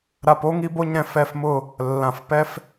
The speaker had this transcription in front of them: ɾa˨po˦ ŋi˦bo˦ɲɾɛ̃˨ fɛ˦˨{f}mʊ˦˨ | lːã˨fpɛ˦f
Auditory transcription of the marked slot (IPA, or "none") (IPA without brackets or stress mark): f